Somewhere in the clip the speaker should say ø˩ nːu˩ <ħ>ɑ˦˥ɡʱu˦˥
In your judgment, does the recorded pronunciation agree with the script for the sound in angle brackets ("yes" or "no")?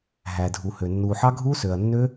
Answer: yes